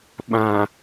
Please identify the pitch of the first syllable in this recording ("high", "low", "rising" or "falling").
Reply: low